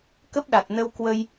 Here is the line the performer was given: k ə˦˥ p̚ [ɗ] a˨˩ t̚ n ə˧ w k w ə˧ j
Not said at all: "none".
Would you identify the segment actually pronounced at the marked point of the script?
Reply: ɗ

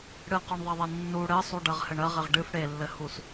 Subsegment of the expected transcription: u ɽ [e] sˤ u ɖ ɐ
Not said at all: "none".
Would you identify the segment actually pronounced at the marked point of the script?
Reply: ɘ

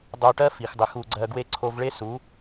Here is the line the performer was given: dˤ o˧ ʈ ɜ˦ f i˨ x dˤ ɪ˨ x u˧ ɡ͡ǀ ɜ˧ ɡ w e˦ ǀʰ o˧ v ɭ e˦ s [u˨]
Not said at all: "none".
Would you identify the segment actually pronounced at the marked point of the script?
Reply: u˨˦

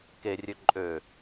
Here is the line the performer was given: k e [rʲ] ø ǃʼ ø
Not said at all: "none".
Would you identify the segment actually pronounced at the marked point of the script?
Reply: rʲ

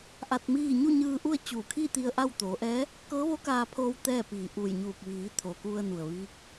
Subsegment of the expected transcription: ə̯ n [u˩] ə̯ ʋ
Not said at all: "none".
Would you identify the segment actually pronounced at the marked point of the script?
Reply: u˩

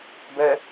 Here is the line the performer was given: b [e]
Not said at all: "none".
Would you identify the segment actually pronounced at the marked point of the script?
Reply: ɛ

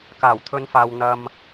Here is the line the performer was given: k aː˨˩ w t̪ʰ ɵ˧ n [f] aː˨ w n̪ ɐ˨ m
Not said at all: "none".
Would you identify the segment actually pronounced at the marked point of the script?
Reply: f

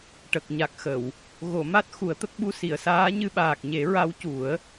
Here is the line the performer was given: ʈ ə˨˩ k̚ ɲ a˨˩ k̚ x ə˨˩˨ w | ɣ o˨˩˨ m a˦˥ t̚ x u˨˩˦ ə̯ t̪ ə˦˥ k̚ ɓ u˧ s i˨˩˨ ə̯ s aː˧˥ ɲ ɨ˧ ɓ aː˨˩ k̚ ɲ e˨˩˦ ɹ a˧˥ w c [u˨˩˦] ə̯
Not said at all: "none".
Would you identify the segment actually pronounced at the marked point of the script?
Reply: u˨˩˦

